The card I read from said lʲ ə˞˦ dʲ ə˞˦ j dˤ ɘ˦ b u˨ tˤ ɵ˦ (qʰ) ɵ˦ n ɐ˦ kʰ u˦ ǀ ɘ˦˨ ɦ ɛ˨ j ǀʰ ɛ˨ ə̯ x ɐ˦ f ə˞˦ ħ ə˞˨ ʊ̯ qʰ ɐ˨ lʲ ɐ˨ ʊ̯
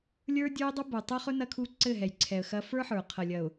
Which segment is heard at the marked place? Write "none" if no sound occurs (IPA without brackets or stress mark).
χ